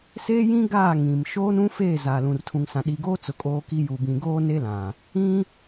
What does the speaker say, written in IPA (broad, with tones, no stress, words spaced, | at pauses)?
seː˦jĩ˦ ɡaː˦˨ ŋĩ˨m ʃoː˦nũ˦ feː˦˨ zaː˨lũ˨rtʰũ˨ŋsã˨ ɗi˨ɡoː˦t͡sʊ˨ kʼoː˦ki˦ juː˨bĩ˨ɡoː˦ ne˦lã˨ | ĩ˦